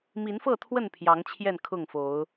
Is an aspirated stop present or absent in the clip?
present